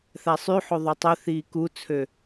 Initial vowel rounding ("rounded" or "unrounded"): unrounded